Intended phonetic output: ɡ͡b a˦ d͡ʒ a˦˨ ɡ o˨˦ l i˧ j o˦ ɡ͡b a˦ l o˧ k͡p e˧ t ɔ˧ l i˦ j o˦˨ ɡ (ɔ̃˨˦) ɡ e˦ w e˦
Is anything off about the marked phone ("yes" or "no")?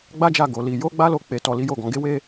no